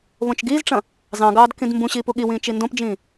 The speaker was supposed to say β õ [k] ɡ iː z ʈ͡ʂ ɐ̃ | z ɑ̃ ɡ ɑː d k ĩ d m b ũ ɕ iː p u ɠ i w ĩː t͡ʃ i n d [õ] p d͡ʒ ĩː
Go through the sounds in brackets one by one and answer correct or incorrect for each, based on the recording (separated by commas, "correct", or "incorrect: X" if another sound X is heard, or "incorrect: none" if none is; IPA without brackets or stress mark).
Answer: incorrect: t͡ʃ, correct